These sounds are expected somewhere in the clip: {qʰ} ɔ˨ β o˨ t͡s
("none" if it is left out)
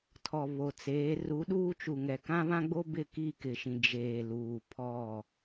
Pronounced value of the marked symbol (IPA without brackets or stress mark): tʰ